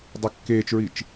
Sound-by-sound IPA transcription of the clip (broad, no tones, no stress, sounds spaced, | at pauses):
dˤ ɐ kː eː t͡ʃ ɹ i t͡ʃ